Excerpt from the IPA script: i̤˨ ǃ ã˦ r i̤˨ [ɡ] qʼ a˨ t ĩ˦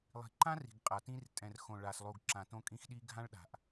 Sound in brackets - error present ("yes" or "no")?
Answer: no